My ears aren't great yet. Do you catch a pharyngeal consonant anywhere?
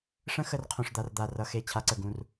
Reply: no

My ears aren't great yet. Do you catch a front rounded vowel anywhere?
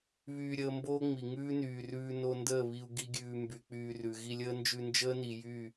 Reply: yes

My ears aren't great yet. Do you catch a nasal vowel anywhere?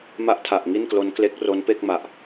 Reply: no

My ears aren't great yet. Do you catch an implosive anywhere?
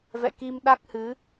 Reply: yes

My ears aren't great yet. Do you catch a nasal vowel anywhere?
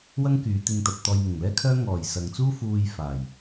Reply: no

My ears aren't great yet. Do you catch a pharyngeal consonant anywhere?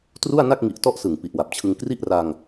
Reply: no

